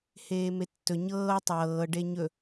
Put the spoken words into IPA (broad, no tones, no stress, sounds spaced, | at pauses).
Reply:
h eː m e tː ɵ ɲ ɤː tˤ ɤː ɖ e ɲ ɵ